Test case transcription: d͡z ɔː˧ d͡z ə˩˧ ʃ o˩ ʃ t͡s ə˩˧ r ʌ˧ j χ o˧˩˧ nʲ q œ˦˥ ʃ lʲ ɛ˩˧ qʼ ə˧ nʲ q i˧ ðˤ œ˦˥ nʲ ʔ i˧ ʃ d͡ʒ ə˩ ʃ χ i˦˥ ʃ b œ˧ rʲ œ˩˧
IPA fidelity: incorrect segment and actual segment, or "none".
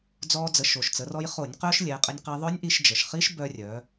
ʌ˧ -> ɔ˧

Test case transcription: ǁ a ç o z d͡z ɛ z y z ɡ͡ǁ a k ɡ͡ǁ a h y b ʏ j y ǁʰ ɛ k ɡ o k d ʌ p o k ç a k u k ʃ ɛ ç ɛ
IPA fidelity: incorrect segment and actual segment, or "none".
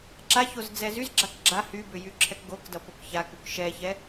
none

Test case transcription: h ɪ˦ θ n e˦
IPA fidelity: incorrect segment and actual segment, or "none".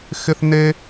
h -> x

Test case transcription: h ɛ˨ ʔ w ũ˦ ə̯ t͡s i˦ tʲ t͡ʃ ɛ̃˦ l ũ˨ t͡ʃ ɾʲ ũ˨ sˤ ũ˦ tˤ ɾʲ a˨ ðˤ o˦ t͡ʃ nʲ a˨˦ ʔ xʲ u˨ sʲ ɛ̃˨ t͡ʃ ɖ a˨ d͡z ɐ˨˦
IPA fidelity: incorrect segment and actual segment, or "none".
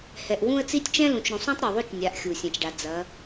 none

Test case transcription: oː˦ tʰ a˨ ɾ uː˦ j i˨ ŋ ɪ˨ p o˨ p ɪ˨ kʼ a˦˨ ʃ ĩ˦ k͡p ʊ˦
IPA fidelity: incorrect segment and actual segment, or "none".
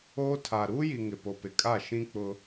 none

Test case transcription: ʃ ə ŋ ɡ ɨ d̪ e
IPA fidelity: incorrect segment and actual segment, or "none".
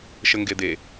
ɨ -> e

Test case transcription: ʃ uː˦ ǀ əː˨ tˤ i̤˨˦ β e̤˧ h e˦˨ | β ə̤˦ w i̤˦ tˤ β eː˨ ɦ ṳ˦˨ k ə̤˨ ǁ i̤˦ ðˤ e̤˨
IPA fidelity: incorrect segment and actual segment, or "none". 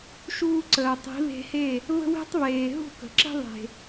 none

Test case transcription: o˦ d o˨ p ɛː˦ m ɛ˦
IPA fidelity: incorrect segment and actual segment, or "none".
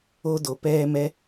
none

